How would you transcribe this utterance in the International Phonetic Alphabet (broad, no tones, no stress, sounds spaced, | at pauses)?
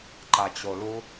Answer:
ǃ a t͡ɕ o l u